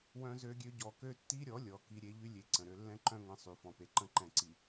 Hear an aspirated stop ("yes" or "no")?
no